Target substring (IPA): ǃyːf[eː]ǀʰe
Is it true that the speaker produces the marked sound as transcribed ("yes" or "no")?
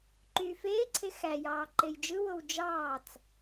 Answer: yes